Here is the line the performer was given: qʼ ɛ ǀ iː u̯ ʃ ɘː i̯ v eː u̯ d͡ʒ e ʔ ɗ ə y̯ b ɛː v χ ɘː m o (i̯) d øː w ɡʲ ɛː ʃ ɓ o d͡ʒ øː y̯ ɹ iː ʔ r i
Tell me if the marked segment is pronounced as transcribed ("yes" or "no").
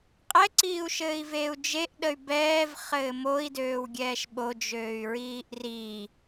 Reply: yes